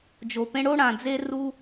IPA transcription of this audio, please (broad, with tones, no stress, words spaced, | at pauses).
d͡ʒo˨pẽ˦ ɽo˦ɽã˨d͡ze˦ ru˦